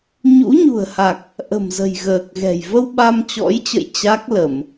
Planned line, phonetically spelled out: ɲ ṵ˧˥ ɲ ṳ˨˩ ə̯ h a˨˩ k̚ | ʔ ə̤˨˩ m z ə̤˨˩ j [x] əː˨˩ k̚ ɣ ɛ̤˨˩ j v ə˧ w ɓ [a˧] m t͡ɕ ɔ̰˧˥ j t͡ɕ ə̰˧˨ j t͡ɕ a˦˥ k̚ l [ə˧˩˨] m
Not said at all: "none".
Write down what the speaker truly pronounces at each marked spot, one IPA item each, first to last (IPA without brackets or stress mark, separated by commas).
ɣ, a˧, ə˧˩˨